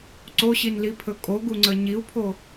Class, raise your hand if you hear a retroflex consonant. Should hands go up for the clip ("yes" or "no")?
no